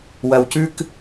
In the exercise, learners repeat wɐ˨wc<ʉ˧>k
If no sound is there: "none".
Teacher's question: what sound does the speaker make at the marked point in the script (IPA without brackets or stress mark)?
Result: ʉ˧